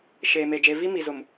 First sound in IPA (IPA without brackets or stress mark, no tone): ʃ